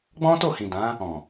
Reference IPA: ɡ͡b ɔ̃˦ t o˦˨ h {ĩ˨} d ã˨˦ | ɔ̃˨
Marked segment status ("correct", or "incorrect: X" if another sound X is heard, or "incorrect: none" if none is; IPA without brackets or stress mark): correct